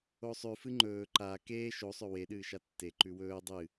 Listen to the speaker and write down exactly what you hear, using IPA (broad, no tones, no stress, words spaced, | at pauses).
osˤʉ fɨŋ͡ǃɵː ǃa keː ʃosˤɵ weɗɨːʃa tːeǃʉ wɵː dˤɨ